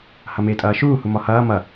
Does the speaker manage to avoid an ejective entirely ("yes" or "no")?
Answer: no